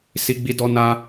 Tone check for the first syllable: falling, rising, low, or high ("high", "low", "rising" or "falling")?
high